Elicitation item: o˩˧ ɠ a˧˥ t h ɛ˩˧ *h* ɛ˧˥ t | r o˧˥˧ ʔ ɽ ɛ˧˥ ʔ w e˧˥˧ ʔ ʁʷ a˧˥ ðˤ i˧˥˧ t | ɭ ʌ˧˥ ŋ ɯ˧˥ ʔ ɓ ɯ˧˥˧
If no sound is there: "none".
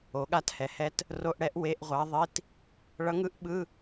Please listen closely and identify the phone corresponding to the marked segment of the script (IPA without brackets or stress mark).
h